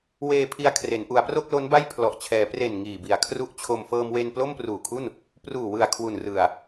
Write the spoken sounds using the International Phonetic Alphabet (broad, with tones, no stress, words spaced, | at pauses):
weː˧pʰi˧a̯ kʰre˩˦n ʔu˩˦a̯pro˥˩k̚lo˦˥nba˥˩j pʰlɔ˨˩ʔt͡ɕʰɛː˩˦ pre˨˩n ŋiː˨˩bi˩˦a̯kʰru˦˥ʔt͡ɕʰo˧m fɤː˧mwe˧n plo˥˩mpruː˨˩kʰu˥˩n | pruː˨˩wɯ˨˩a̯ kʰwu˨˩nrɯ˨˩a̯